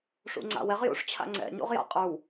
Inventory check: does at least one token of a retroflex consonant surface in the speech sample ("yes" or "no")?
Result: yes